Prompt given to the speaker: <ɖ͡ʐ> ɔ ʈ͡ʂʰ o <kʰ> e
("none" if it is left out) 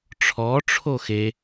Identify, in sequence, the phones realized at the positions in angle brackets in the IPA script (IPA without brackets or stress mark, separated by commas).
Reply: ʈ͡ʂʰ, x